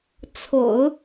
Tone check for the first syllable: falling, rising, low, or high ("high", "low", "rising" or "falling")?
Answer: low